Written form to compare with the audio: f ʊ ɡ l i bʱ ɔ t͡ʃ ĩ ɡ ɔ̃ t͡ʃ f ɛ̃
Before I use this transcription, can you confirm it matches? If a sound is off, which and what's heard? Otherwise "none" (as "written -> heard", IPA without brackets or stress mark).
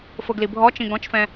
none